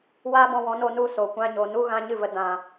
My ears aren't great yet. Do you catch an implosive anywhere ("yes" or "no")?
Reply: no